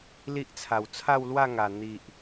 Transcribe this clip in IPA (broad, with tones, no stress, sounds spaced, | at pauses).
l i˦ ʔ t͡sʰ a˨˩ w t͡sʰ a˥˧ w l w a˥˧ ŋ a˨˩ n̪ i˨ ʔ